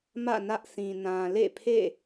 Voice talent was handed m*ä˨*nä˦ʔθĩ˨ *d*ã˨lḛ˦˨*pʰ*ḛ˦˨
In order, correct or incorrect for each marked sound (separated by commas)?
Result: incorrect, incorrect, correct